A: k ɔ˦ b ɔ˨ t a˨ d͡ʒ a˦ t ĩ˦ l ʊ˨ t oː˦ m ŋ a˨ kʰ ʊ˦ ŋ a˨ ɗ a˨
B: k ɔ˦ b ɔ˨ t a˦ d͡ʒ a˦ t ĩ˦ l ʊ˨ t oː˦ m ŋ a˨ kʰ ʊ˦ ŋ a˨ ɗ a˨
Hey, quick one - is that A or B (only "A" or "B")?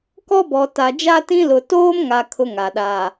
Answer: A